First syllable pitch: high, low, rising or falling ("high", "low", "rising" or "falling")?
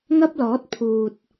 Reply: high